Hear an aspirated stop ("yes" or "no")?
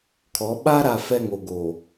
yes